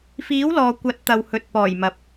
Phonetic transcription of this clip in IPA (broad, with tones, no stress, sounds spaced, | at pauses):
f iː˨˥ w l ɔː˨ kʷ ɐ˨˥ t̚ t̪ ɐ˨ w h ɵ˨ t̚ p ɔː˨˩ j m ɐ˨ p̚